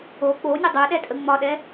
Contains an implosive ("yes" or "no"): yes